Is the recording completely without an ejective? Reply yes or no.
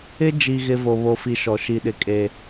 no